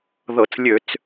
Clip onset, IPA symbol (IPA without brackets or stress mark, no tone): ð